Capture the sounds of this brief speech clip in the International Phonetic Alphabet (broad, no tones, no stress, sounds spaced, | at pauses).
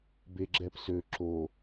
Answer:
b e ɡ͡ǁ ɛ p s ø ǁ o